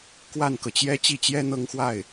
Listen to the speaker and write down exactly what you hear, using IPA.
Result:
k w a˥˩ n k ɤ˩ t͡ɕ j ɛ˥ t͡ɕ i˥˩ t͡ɕ j ɛ˥ n̪ ɤ˥˧ ŋ x w a˥˩ ɪ̯

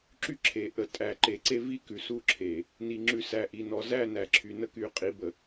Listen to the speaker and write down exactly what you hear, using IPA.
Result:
ǁ y˦ ǁʰ e˨ ʔ ə˨ tʼ æ˨ ǃ e˨ ǀ e˦ v i˦ k ʉ˨ s u˦ ǁʰ e˨ | n i˨ ŋ͡ǁ ʉ˨ s æ˨ ʔ i˨ n ɔ˨ z æ˦˨ n æ˨ ǁʰ y˨ n ə˦ k y˨ qʼ i˨˦ b ə˨

